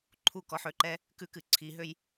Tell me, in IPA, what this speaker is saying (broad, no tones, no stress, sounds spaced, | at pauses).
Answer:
ǃʰ u k ɔ ħ ø ǃ ɛ | k ʉ k ɨ ǀʰ i ɦ ø j